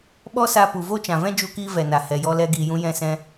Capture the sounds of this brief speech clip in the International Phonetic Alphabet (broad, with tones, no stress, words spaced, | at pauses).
ɓɔ˦sa˧pu˨ vo˦t͡ʃã˨vɛ̃˦ d͡ʒu˧kiː˧ vɛ˨na˨ hɛ˨jɔ˧ lɛ˧ɡiː˨jũ˧ jɛ̃˧sɛ̃˧